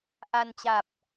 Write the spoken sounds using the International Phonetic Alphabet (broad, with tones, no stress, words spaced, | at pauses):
ʔa˧nt͡ɕa˨˩p̚